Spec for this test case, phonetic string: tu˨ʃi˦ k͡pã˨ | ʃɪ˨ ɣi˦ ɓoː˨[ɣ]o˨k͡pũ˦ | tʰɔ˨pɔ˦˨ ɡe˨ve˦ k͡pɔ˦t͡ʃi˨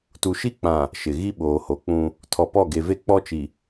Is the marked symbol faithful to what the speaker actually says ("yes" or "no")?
no